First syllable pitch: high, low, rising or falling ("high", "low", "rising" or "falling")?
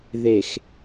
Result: low